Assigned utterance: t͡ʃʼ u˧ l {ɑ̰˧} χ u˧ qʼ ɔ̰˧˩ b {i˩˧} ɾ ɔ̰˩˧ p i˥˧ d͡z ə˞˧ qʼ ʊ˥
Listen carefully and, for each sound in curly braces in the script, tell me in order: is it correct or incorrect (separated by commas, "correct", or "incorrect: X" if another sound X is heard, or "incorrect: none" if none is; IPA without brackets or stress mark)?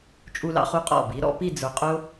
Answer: correct, correct